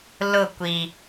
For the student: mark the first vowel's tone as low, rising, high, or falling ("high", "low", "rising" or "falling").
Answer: falling